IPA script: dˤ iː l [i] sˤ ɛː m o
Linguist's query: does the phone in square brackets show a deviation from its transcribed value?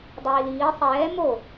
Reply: yes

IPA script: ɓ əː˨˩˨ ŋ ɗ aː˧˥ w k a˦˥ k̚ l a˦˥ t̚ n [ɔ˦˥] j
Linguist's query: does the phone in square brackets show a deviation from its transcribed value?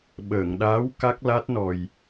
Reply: yes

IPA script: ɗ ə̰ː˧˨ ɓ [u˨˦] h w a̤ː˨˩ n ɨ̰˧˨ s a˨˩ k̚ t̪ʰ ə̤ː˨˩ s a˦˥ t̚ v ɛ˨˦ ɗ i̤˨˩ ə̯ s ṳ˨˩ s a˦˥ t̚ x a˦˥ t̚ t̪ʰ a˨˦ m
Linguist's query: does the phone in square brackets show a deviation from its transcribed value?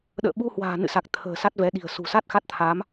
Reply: yes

